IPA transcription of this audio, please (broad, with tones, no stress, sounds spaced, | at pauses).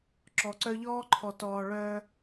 ǁ ɔ˨ ǀ œ˦ ʎ ɔː˦ ǃʰ ɔ˨ t ɔː˨ ɭ œː˦